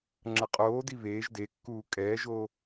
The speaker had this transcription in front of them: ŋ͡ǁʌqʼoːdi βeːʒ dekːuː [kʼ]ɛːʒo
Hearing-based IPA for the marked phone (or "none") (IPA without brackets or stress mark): kʼ